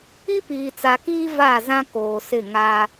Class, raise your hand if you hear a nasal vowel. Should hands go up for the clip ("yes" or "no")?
yes